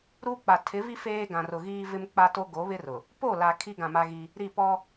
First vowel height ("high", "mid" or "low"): high